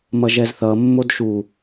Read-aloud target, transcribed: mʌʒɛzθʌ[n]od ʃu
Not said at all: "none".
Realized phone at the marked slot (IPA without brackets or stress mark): mː